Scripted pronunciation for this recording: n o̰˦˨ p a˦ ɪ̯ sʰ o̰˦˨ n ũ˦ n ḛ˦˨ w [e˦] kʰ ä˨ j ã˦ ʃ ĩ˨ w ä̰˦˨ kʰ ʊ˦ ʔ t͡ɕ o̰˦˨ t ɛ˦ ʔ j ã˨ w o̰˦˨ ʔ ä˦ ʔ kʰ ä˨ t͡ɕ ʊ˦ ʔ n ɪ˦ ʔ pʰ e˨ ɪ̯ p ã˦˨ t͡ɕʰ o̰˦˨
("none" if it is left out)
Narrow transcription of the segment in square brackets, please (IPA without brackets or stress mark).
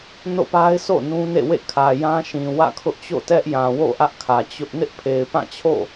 ḛ˦˨